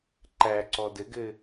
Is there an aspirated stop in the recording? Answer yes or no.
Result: no